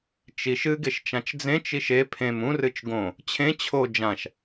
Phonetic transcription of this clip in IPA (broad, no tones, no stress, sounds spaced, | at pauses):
t͡ʃ i ʃ ɨ ɡ e ʃ t͡ʃ ã t͡ʃ d͡z ẽ t͡ʃ i ʃ e pʰ ẽ m ũ r ɨ t͡ʃ ɡ õ | t͡ɕʰ ẽ t͡ɕʰ o d͡ʒ ã ʃ